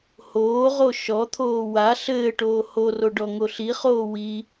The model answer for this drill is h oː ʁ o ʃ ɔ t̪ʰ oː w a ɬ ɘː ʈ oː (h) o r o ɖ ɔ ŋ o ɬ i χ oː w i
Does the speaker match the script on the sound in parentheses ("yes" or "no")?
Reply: yes